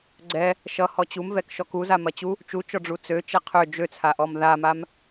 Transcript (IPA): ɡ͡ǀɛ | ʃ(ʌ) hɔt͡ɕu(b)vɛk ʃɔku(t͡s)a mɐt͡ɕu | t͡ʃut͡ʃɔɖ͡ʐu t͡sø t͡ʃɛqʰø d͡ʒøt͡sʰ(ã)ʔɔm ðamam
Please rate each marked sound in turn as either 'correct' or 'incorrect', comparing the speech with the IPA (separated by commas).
correct, incorrect, incorrect, incorrect